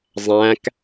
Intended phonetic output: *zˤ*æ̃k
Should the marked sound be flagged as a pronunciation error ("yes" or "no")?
no